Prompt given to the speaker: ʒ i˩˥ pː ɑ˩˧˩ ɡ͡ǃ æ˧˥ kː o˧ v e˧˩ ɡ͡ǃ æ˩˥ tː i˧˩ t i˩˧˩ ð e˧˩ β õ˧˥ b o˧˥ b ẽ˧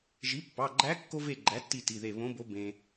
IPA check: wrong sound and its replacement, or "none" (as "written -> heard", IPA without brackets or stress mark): none